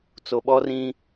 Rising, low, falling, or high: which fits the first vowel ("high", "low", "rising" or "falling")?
low